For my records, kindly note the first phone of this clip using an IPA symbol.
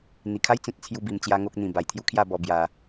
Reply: n̪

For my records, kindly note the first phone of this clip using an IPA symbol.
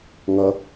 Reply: ŋ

